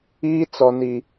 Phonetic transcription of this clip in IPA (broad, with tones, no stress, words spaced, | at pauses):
iː˦t͡sɔ˨ni˨